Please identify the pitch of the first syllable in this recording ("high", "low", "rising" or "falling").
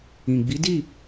low